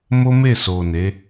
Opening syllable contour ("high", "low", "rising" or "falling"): high